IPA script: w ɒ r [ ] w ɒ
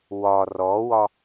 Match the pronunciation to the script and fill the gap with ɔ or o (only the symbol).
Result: ɔ